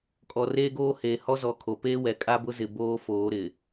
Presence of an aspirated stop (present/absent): present